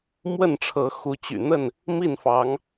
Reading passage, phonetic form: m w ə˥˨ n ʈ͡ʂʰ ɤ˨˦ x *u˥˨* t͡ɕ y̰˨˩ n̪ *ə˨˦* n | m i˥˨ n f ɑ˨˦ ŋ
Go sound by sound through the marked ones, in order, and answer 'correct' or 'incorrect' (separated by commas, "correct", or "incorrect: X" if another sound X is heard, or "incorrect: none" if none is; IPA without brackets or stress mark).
incorrect: u˨˦, incorrect: ə˥˨